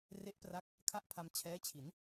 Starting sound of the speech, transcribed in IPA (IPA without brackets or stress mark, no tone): r